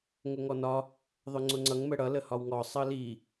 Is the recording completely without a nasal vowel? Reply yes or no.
yes